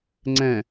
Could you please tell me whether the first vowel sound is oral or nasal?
nasal